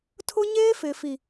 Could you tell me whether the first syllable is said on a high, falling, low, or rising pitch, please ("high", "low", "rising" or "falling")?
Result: high